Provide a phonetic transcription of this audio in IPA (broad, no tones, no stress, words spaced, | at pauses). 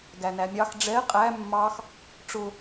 ɡænæmʲɑx ɖ͡ʐɛ qʼæ mːɑx | ʈ͡ʂʊ